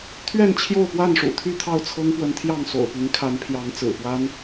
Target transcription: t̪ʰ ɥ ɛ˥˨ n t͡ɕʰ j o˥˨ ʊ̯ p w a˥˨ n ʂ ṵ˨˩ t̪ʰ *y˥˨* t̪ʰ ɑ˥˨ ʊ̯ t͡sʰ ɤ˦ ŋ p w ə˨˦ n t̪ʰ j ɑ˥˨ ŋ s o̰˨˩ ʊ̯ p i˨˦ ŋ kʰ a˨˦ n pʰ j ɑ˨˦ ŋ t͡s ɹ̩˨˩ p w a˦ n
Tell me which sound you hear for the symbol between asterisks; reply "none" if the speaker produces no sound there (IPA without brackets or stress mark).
y˥˨